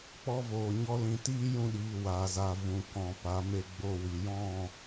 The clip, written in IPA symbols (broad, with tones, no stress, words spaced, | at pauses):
k͡pɔ˧voː˨ ɲɔ˦lĩ˧ tiː˦jũ˧ɗiː˨ waː˨za˨ vũ˨kɔ̃˨ pa˨˦me˧ɡ͡bo˧wi˨ jɔ̃˦˨